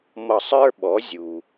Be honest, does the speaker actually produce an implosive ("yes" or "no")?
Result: yes